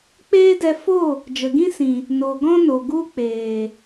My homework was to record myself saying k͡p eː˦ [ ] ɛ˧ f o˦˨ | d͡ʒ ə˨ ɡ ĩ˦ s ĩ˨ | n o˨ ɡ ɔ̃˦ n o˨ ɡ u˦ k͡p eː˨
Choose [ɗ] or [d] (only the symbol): d